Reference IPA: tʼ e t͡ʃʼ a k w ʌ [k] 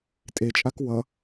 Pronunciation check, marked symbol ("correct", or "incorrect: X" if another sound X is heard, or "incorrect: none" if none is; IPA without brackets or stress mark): incorrect: none